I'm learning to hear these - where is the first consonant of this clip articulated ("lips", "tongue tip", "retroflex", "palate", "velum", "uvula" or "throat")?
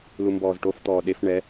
tongue tip